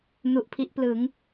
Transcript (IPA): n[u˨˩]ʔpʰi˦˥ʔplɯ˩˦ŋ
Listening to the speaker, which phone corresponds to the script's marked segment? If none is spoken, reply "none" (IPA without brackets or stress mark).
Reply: u˨˩